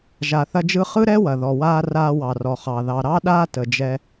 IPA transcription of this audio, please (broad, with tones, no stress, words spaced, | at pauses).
ʒa˩θɐ˧d͡ʒɯ˧ χɯ˥ɾɛ˥wɐ˩ ðɔ˩waː˧ raː˧wɑ˩rɔ˩χɑ˩ ðɑ˩ɾɑ˥ɗaː˥ tə˩d͡ʒɛ˧